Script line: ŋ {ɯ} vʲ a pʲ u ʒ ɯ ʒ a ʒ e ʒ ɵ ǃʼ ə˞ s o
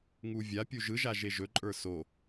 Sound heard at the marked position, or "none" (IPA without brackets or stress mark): u